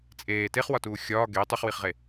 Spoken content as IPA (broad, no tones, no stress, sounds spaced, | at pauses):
t͡sʼ eː t e χ w ɒ t uː xʲ ɒː ɡ e tˤ u χ w i χ ʁ e